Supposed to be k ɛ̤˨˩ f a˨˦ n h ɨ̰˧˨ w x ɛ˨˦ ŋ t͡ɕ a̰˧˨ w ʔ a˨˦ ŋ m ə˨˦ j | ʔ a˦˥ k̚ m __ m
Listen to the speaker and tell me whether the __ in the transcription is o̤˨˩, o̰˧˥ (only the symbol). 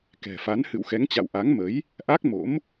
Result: o̰˧˥